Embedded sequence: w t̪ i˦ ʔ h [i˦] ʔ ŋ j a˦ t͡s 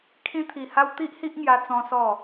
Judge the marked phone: correct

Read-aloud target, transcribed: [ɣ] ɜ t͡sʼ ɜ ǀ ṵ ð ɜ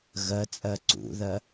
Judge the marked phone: correct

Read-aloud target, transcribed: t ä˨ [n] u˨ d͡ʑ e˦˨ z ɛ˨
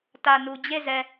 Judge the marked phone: correct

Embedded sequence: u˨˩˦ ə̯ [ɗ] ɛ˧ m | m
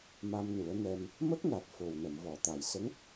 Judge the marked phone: incorrect: n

